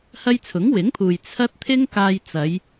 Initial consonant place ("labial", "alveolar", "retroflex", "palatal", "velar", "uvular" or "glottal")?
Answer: glottal